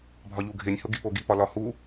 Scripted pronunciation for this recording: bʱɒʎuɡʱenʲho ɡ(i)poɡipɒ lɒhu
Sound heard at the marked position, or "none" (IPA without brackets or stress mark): i